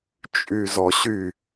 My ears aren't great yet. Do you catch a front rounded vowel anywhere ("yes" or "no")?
yes